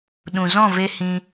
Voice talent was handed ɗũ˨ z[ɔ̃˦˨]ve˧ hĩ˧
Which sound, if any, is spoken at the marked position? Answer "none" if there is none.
ɔ̃˦˨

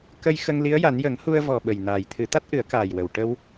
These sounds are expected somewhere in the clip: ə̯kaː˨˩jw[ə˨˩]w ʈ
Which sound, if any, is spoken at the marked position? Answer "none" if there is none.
ə˨˩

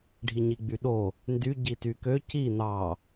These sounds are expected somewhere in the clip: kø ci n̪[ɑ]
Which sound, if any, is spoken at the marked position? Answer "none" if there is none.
ɑ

